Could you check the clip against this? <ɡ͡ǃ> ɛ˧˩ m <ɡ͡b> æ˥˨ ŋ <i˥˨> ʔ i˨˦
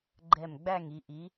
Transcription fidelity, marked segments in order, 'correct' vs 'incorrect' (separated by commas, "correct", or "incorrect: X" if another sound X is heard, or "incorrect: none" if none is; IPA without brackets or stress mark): correct, correct, incorrect: i˧˩